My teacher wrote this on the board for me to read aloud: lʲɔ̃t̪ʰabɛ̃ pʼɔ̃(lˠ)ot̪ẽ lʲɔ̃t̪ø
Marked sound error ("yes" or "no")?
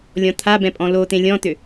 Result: yes